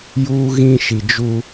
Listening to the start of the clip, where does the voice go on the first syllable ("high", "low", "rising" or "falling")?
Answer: high